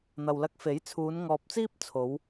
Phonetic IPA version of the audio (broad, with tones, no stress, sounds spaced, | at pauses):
n̪ ɐ˨ w l ɐ˧ k̚ f e˨˥ j t͡sʰ uː˨˧ n ŋ ɔː˨ p̚ t͡s iː˥ p̚ t͡sʰ o˨˧ w